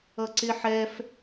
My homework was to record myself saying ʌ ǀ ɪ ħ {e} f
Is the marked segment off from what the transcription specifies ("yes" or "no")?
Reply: yes